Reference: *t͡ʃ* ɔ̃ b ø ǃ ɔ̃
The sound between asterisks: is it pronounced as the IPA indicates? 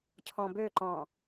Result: no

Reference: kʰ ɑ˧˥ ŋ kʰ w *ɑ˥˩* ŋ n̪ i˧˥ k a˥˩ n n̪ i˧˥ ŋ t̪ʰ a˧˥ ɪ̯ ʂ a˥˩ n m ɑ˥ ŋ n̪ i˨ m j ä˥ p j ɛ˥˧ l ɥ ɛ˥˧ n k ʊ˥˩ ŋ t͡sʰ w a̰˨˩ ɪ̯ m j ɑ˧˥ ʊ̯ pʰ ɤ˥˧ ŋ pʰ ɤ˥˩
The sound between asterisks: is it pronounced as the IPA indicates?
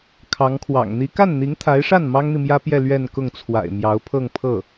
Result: no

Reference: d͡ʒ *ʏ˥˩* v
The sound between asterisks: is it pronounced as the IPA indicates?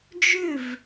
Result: yes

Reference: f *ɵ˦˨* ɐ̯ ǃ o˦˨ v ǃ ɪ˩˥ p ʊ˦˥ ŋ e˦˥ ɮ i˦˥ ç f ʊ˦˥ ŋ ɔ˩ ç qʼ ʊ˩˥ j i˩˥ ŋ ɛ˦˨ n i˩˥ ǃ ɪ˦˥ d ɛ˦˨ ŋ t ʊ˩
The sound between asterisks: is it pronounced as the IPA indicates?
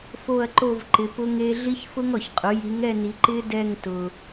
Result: no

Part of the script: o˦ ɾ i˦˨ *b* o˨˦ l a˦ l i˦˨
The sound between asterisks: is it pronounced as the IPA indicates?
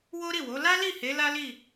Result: no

